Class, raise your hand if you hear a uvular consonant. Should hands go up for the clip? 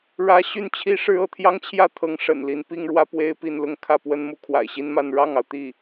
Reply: no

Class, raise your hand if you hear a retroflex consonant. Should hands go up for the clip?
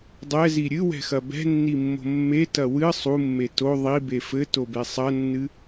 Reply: no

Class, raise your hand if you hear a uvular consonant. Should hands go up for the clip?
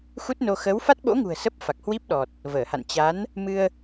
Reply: no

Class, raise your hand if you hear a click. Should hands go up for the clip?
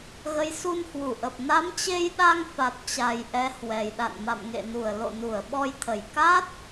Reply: no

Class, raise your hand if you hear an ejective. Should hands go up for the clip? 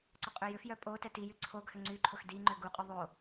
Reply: yes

